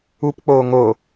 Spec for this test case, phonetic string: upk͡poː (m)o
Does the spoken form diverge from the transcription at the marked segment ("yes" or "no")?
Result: yes